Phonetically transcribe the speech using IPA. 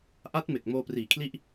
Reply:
ʔa˦˥t̚me˨˩k̚ moː˧priː˨˩kʰli˥˩ʔ

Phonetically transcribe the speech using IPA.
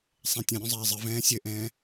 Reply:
sˤẽtʲɐ̃ ɾʲõzˤɛːzˤɘ vɛ̃ːsʲɘʔɛ̃ː

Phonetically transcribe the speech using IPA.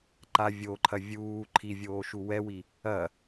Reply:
ǃa vʲoǃʰɐ vʲuː ǃʰivʲoːʃu wɛwi | ɐ

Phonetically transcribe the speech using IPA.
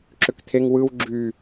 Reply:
ǁøkt̪ʰeŋ wɯw ɡ͡ǁy

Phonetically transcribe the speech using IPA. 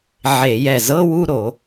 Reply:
ʕe˧˩˧jɛ˧˩ zɤ˧˥˧wu˥˧ɾo˧˩˧

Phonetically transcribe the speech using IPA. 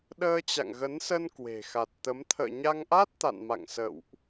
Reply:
ɗəː˧t͡ɕa̰˧˨ŋɣə˨˦nsə˧n kwe̤˨˩xa˨˩t̚t̪ə˨˦m t̪ʰə̰ː˧˨ɲa˧ŋʔa˦˥t̚ t̪a̰˧˨nma̰˧˨ŋ sə̰˧˨wʔ

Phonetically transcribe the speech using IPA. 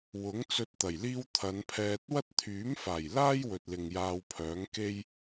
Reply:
wʊ˨˥ŋt͡sɵ˧t̚ t̪ɐ˨˩jliː˥w t̪ʰɐ˨˧npʰɛː˧t̚ wɐ˥t̚t̪ʰyː˨˥m faː˨˩jlaː˥j wɵ˨t̚ lɪ˨ŋjaː˧wpʰœː˨˥ŋ ke˥j

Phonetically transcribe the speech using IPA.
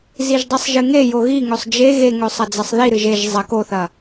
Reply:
ziʒdˤisˤʒɨŋe joɣi ŋɵsˤd͡ʒe ɣeŋɵ sˤɐd͡zɐsˤðiɾɨʒ eʒ zˤɐk oθɐ

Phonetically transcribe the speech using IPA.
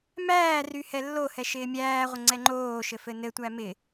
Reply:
mæː ryhɛlːohɛ ʃɪːmʲæːʁʷə ŋ͡ǀɛŋ͡ǃoːʃɘ fɘnɘtʷæ mɪ

